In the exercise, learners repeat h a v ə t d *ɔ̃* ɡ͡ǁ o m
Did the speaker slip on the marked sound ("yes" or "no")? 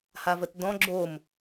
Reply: no